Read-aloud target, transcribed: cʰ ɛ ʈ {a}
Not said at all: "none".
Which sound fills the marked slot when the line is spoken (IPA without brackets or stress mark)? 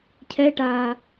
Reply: aː